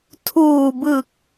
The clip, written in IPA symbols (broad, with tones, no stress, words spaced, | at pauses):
tʰuː˨˩bɯ˨˩k̚